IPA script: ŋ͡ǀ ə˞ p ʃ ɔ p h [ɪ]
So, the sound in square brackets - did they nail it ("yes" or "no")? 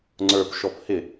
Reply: yes